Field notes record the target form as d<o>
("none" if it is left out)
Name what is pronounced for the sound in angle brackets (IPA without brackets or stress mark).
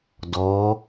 ɔ